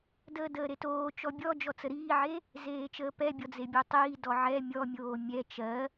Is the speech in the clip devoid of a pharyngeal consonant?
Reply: no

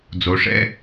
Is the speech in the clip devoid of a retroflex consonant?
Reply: no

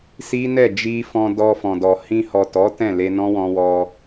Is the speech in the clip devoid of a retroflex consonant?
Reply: yes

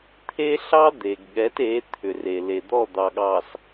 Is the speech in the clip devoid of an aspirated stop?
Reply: no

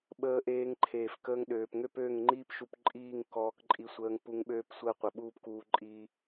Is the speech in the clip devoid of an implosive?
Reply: no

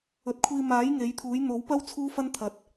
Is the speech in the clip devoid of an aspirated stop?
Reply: no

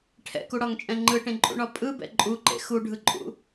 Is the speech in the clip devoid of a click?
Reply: no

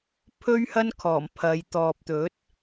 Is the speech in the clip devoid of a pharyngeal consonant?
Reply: yes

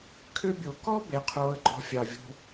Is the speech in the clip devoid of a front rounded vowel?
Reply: no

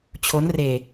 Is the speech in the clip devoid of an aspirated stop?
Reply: no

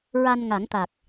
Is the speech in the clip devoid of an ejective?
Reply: yes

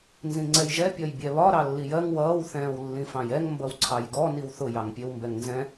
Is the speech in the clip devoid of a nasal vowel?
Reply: no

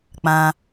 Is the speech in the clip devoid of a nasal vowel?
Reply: no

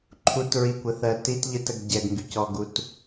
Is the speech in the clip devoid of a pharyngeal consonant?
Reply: yes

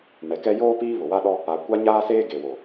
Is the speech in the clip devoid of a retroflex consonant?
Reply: yes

